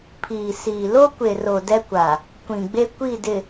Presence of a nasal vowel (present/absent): present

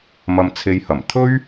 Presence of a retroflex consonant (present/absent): absent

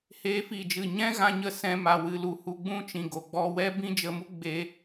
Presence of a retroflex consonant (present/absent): absent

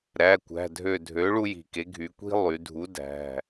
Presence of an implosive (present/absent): absent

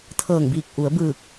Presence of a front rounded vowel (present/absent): absent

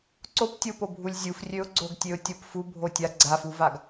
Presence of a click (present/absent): present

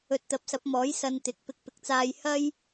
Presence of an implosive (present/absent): absent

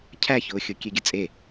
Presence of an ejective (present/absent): present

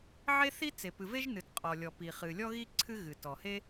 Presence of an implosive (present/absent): absent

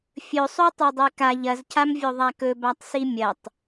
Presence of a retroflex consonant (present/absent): absent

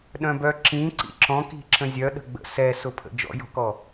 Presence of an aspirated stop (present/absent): present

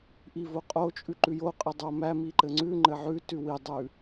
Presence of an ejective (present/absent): present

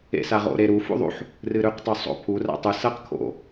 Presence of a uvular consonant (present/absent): present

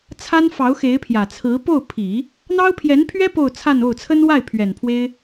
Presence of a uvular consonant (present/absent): absent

